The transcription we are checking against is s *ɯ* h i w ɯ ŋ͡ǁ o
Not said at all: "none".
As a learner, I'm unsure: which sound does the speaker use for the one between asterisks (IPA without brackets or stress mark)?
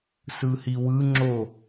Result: ɯ